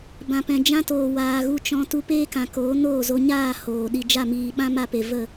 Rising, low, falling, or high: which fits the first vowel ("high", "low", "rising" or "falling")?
low